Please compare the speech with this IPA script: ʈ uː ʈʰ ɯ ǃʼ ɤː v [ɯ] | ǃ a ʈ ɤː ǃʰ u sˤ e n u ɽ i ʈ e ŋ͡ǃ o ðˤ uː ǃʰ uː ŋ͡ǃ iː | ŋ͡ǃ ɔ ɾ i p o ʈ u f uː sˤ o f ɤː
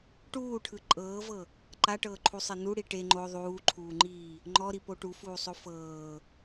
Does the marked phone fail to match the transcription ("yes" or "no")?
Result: yes